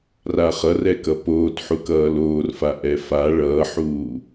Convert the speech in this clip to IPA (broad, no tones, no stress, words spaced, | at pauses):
raχʌrɛ kʌpoːtħuk ʌːloːrfa ʔɛfa ɭʌːħuː